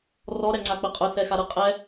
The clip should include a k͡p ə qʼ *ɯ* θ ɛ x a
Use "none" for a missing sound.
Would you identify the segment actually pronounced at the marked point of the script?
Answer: ʊ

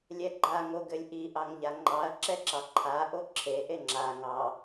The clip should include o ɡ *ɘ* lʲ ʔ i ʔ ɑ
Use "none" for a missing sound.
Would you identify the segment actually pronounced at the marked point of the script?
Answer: ɘ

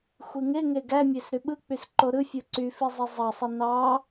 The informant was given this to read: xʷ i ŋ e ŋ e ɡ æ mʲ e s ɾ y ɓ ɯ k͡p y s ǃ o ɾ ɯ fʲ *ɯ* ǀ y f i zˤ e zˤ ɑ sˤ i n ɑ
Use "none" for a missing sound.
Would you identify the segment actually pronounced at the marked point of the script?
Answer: ɯ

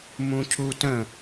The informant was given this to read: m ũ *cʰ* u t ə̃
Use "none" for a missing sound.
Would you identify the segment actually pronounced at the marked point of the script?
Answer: cʰ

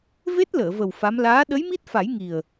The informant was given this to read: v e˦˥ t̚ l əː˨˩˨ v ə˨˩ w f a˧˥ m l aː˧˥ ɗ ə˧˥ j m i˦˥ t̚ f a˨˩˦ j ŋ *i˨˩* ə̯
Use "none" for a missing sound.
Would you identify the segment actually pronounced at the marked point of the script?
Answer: i˨˩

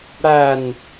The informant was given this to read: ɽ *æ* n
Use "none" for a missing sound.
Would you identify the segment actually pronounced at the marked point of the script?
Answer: æ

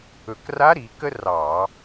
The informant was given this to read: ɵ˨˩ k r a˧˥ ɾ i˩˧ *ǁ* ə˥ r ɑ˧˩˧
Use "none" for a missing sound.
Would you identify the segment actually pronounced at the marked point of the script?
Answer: k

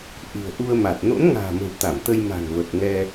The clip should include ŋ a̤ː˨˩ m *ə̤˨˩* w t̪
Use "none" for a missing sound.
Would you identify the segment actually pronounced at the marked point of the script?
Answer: ə̤˨˩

